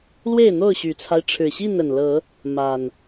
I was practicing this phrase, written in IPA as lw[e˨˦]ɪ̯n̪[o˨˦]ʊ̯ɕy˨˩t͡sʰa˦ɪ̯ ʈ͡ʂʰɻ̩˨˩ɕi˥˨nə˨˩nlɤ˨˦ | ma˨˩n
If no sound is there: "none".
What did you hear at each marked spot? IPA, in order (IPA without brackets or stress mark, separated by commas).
e˥˨, o˥˨